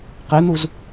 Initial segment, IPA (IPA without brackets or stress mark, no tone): q